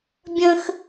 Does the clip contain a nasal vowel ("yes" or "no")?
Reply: yes